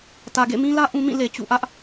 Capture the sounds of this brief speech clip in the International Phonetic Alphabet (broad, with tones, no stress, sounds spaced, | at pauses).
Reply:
t ä˨ ɡ ḛ˦˨ m ĩ˦ l ä˦ ʔ ũ˦ m ĩ˦˨ l e˨ t͡ɕ ṵ˦˨ ʔ ä˦ ʔ